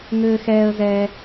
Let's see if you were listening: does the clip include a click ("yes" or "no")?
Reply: no